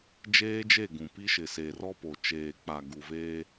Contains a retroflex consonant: no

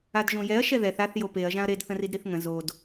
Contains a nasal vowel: yes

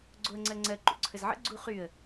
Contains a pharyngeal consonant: yes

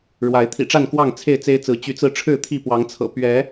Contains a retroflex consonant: yes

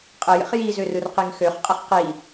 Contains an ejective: yes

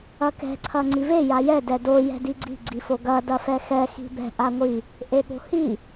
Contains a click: yes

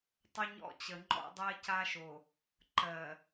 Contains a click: yes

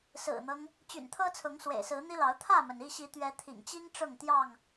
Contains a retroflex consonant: yes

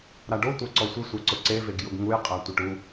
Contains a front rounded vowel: no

